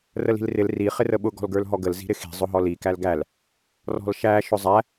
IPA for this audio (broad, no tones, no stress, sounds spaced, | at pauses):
r ə l i̤ l r ɪ l r i χ ɪ r ə ɓ ʊ ɡ ɔ̤ l ɡ ə˞ l ɦ ɔ ɡ ə l z i̤ ɾ ɪ x i̤ zˤ ʊ ɦ ɔ l i k æ l ɡ æ l | r ɔ̤ l ʃ æ ʃ ʊ zˤ æ